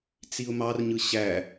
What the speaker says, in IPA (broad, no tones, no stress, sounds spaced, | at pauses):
t͡s i ʊ̯ m ɑ r ɲ ɯ ɕ æ